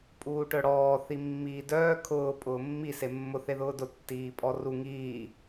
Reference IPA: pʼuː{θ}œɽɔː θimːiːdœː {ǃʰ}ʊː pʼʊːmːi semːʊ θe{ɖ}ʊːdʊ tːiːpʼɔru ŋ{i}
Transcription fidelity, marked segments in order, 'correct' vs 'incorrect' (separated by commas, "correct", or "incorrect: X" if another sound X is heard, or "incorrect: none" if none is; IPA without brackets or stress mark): incorrect: ʈ, incorrect: kʰ, incorrect: ð, incorrect: iː